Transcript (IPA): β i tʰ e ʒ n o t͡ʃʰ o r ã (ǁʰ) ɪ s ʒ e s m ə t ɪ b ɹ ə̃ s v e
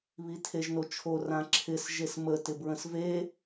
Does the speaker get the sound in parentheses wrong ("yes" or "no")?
no